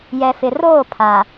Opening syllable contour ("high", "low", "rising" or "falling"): low